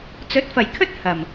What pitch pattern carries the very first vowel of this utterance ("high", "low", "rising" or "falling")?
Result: rising